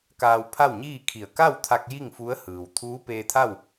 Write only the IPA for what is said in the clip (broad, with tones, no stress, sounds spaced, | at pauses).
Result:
k aː˧ w pʰ a˥˨ w ɲ iː˥˨ kʰ i˧˩ ə̯ k a˥˨ w t̪ʰ a˧ k̚ j i˥˨ ŋ f u˧˥ ə̯ h ɯː˩ w t̪ʰ uː˧˥ p eː˧ t̪ʰ a˥˨ w